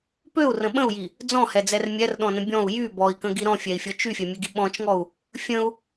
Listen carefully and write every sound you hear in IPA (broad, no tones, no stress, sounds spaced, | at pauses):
p ø u̯ r ə̃ ɓ ə̃ u̯ j i | d͡z ɔ̃ h ɛ d͡z ɛ r mʲ ɛ r ɗ ɔ̃ n ə̃ bʲ ɔ̃ u̯ j y b ɔ i̯ k ə̃ ɡ i ɾ ɔ̃ fʲ ɛ i̯ fʲ ɔ t͡ʃ y fʲ ɛ mʲ ø ɡ i ɓ ɔ̃ t͡ʃ ŋ ɔ u̯ | fʲ ə̃ u̯